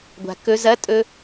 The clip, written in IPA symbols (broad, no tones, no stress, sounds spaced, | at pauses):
ɡʷ a̤ k ɵ z ɐ tʼ ɵ